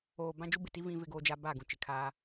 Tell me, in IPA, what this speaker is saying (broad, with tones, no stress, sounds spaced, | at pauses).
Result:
oː˨ b ã˦ d͡ʒ u˦ b ɪ˨ t i˦ v ĩ˦ v ɪ˦ ɡ oː˦ d͡ʒ a˦ b a˦˨ ɡ ũ˨ t͡ʃ ɪ˨ kʰ aː˦